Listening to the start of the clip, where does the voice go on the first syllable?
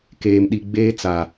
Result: low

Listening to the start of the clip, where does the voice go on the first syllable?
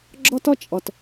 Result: high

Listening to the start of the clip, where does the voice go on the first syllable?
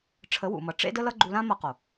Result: rising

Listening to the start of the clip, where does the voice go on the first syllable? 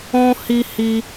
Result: high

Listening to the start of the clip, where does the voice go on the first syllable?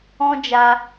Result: high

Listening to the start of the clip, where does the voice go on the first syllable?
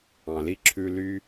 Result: low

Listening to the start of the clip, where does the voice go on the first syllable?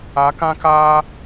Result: rising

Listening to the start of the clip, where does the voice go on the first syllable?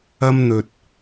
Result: high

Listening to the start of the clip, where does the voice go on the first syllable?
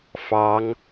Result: rising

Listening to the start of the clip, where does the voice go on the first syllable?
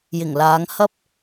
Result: low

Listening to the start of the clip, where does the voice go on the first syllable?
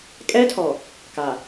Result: high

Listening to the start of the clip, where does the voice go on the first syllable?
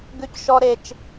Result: high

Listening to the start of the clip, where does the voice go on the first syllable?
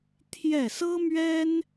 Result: falling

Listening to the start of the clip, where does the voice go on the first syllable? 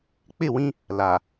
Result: falling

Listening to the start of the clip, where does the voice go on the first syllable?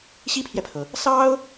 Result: high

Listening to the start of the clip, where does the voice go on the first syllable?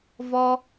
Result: high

